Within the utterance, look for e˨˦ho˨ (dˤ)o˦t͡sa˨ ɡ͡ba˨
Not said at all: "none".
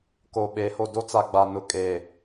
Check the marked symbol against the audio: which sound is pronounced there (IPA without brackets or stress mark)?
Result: d